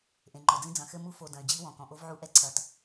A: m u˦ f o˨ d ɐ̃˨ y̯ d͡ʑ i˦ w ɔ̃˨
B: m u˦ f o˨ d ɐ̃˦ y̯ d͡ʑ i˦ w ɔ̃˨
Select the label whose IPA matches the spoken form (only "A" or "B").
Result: A